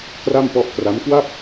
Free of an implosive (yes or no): yes